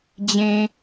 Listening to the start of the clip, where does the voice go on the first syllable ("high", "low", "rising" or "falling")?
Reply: low